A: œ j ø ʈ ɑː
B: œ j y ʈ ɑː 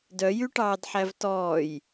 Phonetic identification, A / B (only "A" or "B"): B